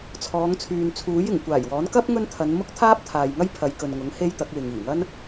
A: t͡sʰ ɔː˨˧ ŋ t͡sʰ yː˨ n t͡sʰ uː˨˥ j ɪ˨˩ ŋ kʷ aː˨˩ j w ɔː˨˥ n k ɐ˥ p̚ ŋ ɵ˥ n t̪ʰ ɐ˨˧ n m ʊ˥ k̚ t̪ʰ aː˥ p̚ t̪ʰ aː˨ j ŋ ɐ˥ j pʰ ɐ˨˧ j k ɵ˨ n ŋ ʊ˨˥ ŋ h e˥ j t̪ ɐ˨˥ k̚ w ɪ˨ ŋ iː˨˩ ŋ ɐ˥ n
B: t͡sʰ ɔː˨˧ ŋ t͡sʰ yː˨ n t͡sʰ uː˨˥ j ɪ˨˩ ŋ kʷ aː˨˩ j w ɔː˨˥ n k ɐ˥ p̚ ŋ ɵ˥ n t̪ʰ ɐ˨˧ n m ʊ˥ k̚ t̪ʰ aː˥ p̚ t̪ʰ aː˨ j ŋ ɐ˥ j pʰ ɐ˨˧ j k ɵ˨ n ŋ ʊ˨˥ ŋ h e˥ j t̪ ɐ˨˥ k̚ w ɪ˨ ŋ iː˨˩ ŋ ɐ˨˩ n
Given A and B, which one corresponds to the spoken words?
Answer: A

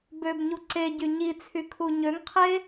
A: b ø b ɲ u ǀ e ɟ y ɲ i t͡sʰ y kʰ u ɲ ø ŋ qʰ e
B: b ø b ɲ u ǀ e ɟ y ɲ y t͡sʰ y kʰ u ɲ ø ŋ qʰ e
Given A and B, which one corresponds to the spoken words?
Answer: A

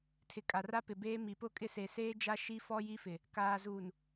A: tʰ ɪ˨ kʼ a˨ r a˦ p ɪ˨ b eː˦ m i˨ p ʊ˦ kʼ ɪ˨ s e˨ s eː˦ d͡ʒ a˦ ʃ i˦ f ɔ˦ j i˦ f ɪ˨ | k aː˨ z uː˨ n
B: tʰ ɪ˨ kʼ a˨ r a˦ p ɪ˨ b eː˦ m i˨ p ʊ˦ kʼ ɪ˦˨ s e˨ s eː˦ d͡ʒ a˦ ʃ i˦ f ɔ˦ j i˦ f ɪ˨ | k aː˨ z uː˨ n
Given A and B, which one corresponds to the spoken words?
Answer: B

